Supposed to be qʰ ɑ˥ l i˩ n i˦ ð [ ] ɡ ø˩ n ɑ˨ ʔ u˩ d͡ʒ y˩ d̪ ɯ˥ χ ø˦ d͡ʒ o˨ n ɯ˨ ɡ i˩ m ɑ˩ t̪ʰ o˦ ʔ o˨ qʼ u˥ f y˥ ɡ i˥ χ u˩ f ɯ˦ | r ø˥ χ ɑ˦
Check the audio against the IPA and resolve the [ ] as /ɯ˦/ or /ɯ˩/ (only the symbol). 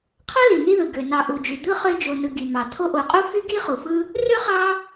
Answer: ɯ˩